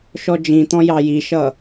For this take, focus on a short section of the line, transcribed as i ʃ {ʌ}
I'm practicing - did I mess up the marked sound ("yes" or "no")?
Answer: no